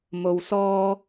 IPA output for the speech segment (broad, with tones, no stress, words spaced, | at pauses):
mo˧wsɔː˥